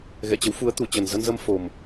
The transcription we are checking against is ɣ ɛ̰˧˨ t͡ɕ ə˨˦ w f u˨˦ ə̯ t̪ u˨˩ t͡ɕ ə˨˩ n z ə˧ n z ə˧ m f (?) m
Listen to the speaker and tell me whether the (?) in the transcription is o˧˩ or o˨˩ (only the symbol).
o˨˩